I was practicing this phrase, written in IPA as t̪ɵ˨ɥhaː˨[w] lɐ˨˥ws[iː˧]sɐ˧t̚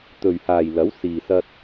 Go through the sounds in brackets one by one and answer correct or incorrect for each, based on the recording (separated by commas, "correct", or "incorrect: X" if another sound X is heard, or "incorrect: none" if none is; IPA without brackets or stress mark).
incorrect: j, incorrect: iː˨